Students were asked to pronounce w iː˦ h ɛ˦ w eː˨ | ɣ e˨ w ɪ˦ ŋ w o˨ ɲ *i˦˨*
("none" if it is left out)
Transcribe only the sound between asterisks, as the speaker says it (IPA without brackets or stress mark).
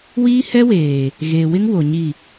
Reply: i˦˨